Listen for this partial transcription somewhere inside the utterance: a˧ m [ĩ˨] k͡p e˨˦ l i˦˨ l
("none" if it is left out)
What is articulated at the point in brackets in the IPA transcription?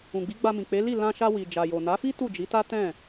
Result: ĩ˨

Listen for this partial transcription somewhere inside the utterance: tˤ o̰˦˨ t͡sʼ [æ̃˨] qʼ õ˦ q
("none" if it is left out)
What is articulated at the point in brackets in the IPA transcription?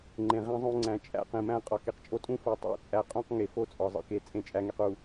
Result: æ˨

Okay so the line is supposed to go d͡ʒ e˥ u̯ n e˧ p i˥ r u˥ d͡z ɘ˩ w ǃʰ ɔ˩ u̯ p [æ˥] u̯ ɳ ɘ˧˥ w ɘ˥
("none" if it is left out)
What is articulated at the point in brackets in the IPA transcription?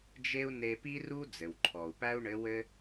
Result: æ˥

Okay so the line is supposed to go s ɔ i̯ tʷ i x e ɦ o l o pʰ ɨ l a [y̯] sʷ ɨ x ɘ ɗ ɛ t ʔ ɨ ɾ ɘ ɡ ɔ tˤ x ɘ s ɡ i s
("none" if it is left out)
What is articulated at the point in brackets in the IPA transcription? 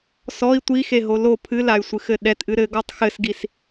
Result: y̯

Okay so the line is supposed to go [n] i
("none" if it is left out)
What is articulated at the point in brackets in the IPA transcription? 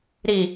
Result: ɾ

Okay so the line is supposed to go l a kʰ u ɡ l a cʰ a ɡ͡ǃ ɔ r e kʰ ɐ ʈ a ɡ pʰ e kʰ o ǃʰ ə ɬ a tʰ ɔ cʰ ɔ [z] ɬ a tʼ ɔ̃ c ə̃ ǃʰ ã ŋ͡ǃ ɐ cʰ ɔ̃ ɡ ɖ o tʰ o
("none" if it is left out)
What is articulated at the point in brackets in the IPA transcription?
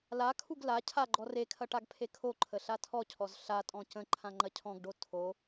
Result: z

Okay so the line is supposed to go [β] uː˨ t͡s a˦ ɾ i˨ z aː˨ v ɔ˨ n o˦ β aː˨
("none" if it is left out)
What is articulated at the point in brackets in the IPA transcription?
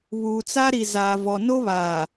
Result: β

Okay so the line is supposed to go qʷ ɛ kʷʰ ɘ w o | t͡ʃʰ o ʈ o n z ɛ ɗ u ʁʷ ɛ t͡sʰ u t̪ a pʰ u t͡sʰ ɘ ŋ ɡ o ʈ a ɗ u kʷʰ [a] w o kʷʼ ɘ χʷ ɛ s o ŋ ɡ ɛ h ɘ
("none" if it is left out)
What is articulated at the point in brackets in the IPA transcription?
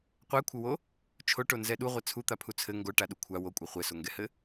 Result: a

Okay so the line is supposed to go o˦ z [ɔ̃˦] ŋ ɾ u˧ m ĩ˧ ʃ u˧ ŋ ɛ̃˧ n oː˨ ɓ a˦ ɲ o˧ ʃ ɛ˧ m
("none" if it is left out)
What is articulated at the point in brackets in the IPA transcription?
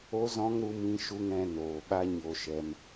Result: ɔ̃˦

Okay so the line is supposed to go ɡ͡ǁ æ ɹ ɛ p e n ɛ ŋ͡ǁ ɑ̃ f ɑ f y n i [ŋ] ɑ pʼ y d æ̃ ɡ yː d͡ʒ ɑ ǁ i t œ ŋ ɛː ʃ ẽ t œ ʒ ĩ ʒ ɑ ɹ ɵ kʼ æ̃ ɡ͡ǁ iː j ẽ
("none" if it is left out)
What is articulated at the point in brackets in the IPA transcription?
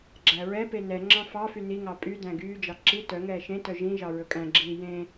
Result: ŋ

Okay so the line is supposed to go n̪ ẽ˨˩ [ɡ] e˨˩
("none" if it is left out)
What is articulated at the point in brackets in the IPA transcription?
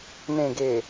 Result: ɡ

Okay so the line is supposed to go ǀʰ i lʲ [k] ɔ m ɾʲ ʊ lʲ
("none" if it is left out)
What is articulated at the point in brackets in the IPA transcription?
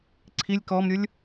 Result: k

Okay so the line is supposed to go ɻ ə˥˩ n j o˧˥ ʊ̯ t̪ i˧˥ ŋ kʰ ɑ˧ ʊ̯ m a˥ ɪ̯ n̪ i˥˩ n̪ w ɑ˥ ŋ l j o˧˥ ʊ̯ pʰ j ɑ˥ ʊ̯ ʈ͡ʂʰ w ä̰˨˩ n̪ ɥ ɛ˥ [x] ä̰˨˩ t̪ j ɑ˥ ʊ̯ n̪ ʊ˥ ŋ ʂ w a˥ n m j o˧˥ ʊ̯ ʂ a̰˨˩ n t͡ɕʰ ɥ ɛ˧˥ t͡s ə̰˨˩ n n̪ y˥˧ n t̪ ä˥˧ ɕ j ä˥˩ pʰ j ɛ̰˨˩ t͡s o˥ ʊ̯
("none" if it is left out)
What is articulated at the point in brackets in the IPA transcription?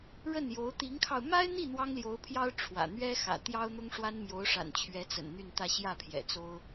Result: x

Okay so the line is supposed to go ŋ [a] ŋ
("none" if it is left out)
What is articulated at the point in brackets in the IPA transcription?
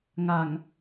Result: a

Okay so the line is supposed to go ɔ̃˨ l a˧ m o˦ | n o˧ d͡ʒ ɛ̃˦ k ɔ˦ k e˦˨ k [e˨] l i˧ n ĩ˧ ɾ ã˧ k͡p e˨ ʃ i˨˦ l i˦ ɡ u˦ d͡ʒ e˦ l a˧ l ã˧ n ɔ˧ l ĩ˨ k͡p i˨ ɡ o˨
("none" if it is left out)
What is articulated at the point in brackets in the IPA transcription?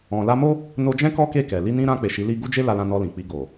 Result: ɛ˨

